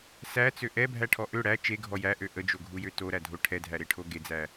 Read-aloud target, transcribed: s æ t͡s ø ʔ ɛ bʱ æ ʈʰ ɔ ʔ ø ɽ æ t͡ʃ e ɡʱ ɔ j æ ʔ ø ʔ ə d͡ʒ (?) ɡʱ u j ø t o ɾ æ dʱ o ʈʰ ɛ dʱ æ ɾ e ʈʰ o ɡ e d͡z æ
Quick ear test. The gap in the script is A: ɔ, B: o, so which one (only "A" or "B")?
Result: B